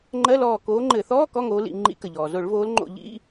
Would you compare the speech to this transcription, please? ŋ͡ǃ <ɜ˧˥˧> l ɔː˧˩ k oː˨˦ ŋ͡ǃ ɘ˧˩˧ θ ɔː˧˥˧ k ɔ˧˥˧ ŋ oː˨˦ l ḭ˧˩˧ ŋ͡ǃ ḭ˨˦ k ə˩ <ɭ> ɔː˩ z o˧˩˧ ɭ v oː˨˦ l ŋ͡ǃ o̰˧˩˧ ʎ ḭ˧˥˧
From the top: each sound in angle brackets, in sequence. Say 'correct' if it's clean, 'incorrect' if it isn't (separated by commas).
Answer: correct, incorrect